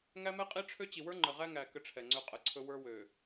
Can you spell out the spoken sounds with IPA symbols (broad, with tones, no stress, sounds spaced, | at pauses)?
ŋ æ˦ m ɛ˦ qʼ i˦ ʈ͡ʂʰ ø˦ t͡ɕ i˨ w ə˞˦ ŋ͡ǃ ə˨ ʁ æ˦ ŋ æ˨ k ə˦ ʈ͡ʂʰ ɛ˨ ŋ͡ǀ ø˦ qʼ ə˨ ǀʰ ɵ˦ w ə˞˦ w ø˨